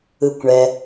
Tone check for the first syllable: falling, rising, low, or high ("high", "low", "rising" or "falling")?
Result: low